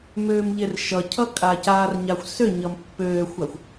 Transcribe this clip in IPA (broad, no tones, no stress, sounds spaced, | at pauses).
m øː m ʎ e r ʃ ʌ cʰ ʌ kʼ a c a r ɲ a xʷ s ø ɲ ʌ m pː øː xʷ a xʷ